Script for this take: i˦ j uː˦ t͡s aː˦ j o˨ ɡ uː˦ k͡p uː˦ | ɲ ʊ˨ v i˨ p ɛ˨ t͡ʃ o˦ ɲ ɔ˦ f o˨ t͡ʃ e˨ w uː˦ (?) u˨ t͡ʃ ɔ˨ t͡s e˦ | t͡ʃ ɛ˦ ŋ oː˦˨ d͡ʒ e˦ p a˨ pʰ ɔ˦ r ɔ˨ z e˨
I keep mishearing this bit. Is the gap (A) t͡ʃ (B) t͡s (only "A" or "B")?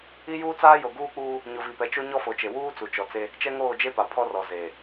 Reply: B